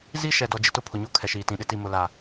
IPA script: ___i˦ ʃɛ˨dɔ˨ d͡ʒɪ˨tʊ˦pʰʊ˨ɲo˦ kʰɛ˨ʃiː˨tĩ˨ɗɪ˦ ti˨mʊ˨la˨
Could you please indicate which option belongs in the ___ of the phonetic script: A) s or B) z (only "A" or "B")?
B